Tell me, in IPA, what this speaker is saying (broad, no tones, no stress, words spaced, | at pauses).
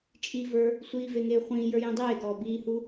t͡ʃʼivə˞ | sʷiːveŋeː χʷĩːjə˞jĩ dˤeːɡɔː biːhu